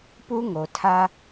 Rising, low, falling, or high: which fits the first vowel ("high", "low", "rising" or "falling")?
high